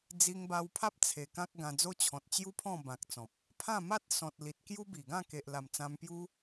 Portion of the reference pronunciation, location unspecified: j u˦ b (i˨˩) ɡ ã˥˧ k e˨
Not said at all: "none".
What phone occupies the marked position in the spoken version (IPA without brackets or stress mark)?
i˨˩